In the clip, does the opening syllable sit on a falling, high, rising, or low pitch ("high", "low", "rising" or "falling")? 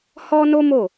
high